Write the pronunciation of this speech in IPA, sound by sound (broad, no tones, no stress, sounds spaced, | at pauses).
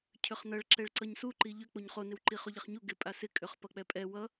cʰ ʏ χ n ʌ ɭ ǁ ɛ ɭ ǀ ʌ ɲ s u ǃ i ʎ ʏ k͡p o ɲ χ o n ɪ w ǃ i χ o ʎ ɛ χ ɲ u ɡ ɪ pʼ a s ɪ kʼ ʏ χ p ʌ k͡p ɛ pʼ ɛ w ʌ